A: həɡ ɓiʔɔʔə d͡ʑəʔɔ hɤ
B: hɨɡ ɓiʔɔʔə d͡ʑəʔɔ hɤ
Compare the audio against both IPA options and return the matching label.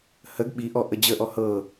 A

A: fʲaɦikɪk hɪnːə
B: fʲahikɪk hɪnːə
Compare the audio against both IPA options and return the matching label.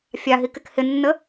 A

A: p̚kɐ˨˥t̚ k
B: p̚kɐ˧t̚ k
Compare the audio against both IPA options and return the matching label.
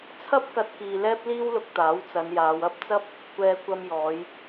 B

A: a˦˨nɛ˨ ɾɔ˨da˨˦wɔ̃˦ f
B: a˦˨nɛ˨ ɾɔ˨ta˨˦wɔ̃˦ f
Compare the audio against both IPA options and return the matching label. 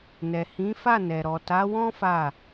B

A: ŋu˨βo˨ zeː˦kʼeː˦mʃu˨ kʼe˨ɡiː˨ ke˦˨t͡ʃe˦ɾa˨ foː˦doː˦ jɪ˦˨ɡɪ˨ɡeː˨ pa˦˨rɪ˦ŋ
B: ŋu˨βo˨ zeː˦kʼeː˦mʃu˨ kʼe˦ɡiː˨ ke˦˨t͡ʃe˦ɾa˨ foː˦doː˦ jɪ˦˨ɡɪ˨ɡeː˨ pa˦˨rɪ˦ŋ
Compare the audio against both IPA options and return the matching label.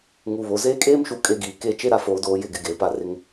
B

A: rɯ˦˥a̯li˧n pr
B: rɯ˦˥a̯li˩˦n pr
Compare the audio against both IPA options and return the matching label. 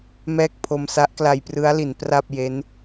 B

